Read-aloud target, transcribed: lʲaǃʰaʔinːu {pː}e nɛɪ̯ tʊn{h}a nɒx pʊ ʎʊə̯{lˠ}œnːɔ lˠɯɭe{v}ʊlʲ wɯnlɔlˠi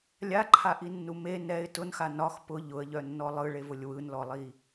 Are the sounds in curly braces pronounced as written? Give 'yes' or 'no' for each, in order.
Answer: no, no, no, yes

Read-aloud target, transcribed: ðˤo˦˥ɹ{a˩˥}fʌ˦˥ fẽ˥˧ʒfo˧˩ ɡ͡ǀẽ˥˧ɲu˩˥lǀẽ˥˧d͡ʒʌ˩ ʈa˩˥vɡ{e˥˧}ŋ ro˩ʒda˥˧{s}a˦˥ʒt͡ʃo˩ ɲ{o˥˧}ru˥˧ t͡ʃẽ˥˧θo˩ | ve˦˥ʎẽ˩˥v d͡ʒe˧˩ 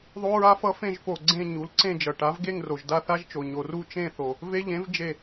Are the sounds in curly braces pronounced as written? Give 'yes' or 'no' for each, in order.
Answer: no, yes, no, no

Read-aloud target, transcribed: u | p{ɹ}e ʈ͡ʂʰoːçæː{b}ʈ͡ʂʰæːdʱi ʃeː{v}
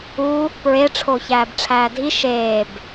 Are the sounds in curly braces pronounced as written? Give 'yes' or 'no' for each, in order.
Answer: yes, yes, no

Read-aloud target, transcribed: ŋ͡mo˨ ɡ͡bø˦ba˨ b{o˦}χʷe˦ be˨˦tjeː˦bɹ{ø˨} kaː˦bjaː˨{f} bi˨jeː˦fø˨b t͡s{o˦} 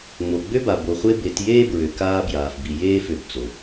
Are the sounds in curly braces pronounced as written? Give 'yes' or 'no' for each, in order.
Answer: no, yes, yes, no

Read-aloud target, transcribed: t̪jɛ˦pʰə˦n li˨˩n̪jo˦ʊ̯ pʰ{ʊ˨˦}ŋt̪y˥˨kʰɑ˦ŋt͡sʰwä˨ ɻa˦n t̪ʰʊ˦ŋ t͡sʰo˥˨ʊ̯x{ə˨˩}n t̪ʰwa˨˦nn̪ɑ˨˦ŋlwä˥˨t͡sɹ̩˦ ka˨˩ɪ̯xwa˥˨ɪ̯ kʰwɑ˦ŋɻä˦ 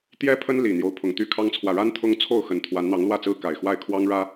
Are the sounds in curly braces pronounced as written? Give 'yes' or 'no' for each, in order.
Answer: no, yes

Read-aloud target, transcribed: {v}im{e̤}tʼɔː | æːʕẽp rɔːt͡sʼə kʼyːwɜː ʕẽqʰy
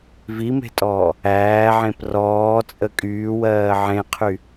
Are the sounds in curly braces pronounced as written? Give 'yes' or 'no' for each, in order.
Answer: yes, yes

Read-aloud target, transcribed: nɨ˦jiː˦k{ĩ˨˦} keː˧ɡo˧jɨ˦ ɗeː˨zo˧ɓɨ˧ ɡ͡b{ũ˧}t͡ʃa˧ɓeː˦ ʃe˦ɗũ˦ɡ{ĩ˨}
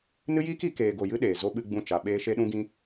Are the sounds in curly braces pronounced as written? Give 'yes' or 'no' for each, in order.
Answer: no, no, no

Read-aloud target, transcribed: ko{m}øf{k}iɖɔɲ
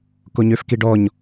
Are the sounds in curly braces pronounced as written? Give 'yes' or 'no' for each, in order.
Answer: no, yes

